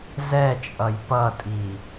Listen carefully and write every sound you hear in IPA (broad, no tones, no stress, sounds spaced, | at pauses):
z ɛ t͡ʃʼ ʌ j p ʌ tʼ i